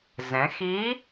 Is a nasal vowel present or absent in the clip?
present